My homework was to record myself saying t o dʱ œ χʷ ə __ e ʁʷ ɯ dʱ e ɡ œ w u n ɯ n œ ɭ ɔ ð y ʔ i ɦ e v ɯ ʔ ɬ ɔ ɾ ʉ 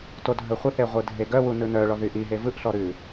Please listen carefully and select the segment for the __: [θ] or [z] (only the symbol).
θ